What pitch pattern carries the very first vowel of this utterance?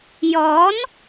rising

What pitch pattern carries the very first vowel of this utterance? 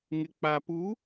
low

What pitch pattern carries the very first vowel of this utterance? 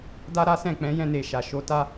high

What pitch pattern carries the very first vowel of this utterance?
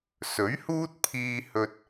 rising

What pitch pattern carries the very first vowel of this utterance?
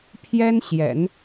high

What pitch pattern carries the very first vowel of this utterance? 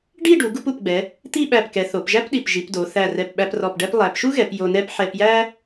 falling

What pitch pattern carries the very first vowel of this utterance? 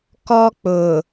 high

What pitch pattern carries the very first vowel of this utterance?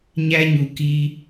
high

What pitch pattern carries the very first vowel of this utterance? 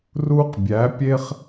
high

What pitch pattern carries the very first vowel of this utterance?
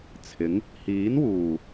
rising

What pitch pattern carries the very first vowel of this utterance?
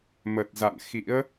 low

